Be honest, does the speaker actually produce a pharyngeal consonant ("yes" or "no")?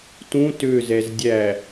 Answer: no